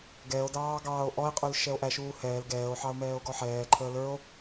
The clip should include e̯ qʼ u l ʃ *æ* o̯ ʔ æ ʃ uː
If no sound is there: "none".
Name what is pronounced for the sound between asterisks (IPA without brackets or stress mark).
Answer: ɛ